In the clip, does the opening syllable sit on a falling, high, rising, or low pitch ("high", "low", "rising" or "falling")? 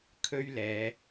high